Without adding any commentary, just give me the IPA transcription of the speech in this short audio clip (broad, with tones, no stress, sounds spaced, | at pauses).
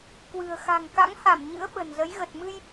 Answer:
k w ɨ̤˨˩ ə̯ x a̤˨˩ ŋ k a̰˧˥ ŋ h a˧˩ m ɲ ɨ̰˧˥ ə̯ ɓ ə̤˨˩ n z ə˨˦ j ɣ ə˨˩ t̚ m ɨ˧ j